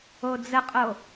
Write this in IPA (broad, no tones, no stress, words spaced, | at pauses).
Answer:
od͡zəqʼo